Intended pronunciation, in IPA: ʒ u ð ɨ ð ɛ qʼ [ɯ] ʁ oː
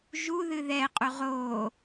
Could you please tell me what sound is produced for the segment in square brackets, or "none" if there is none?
u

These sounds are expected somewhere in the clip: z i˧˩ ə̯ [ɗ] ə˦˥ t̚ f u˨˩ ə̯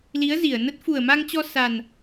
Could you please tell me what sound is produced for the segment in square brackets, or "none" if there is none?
n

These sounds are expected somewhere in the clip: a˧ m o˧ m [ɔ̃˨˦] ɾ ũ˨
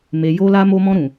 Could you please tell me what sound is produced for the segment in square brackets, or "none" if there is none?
ɔ̃˧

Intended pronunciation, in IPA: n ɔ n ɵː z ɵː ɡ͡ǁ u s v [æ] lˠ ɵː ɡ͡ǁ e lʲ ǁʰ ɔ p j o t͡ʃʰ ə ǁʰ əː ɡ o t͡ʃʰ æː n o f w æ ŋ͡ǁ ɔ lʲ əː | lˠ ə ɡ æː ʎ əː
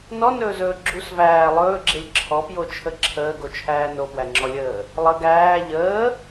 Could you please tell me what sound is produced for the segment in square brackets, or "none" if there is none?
æː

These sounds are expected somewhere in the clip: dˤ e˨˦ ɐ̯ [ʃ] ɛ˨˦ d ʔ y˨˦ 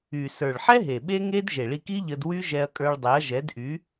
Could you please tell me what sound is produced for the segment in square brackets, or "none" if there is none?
ʒ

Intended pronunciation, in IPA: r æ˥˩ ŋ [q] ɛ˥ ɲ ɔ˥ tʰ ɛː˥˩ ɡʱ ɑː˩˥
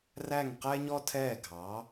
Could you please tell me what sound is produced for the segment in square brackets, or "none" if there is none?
q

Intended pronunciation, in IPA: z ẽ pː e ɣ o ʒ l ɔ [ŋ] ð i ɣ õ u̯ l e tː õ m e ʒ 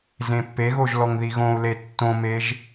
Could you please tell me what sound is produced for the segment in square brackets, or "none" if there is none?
ŋ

